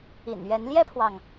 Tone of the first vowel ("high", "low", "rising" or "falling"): low